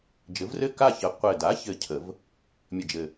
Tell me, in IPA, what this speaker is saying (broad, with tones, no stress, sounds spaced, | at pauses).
d͡ʒ ɘ˩˥ v r ɘ˥˨ k a˥˨ ç ə˩˥ qʷ ɘ˨˩ d a˩˥ ç ɘ˨˩ cʰ ə˨˩˦ v | mʲ ə˨˩ d͡ʒ ɘ˨˩